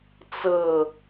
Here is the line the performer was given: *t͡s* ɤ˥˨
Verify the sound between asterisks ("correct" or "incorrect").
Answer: correct